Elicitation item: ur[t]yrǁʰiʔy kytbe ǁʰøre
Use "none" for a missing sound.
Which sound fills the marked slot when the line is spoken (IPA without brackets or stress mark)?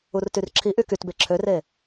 t